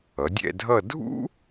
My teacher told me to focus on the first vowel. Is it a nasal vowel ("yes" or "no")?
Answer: no